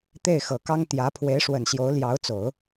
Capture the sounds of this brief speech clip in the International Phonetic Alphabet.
t̪ e˥˩ ɪ̯ x ɤ˨˩ k ɑ˥ ŋ t̪ j ä˧˥ pʰ w e˧˥ ɪ̯ ʂ w ə˨˩ n ɕ j o˧˥ ʊ̯ l j ɑ˧˥ ʊ̯ t͡s o˨˩˦ ʊ̯

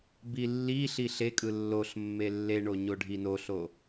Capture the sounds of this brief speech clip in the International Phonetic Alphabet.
b i lː i ɬ i ɬ e kʼ ɯ lː o ɬ mː e lː e ɳ o ɲ o ɖʱ i n o ɬ o

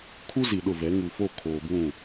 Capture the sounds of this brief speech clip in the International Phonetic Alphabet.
kʰ u˦ z i˨ ɗ ʊ˦˨ v ɛ˨˦ ŋ u˨ f o˦˨ kʰ oː˨ b ũ˦˨

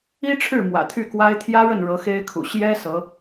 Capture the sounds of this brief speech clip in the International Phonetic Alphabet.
i˥ ʈ͡ʂʰ ɻ̩˥˩ m w ä̰˨˩ t̪ʰ y˥˩ k w a˥ ɪ̯ t̪ʰ j ä˥ ɻ ə˥˩ n ɻ ɤ˧˥ x e˥ ɪ̯ kʰ ṵ˨˩ ɕ j ɛ˥ s ɤ˧˥

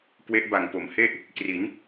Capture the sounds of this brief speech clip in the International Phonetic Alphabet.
k w e˦˥ ʔ b a˨˩ ŋ p o˩˦ m h e˥˩ ʔ | k r i˩˦ n

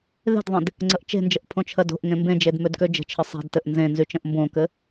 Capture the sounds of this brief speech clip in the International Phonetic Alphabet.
ð e̤ d ðˤ ẽ d | ŋ͡ǀ ə ʔ t͡ʃ e̤ n d͡ʒ ə ʔ pʰ õ t͡ʃʰ ɜ d o̤ ʔ ŋ ẽ m b ẽ d͡ʒ e d m ø d k ø d͡ʒ ə̤ t͡ʃʰ ɘ sˤ e̤ d t ɘ ʔ n z ẽ n z y t͡ʃ ə̃ ʔ m b õ k ɘ

